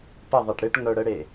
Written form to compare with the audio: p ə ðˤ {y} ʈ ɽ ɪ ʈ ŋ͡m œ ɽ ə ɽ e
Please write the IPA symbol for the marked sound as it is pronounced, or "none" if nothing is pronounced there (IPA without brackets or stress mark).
e